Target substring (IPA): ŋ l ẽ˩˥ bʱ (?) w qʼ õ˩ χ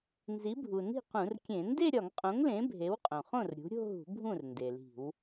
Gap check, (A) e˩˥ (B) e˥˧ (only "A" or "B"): A